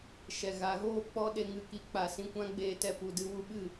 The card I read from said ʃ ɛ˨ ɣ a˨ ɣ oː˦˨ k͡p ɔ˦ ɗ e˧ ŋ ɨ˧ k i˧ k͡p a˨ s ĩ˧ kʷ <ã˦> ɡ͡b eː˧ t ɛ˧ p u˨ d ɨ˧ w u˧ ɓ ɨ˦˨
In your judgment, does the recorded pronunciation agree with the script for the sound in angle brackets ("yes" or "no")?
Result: yes